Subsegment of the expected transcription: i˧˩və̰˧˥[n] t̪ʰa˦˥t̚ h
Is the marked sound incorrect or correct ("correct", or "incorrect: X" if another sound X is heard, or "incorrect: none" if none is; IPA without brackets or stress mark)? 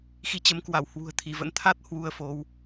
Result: correct